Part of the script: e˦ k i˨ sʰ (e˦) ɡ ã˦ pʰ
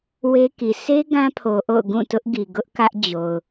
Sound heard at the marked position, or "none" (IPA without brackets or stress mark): e˦